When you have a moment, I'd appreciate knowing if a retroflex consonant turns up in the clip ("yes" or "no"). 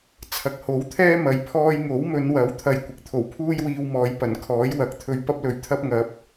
no